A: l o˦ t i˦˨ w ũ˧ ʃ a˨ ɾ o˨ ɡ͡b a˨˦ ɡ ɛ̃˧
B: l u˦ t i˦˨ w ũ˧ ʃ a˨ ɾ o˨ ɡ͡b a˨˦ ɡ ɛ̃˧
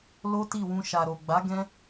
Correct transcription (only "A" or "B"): A